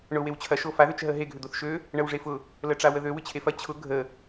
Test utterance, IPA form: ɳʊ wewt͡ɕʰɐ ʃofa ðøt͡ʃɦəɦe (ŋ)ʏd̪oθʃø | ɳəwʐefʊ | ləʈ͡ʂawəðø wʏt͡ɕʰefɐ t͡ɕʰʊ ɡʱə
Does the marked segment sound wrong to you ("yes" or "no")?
yes